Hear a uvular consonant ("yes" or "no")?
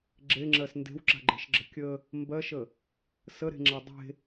no